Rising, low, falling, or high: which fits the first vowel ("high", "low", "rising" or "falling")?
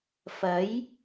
rising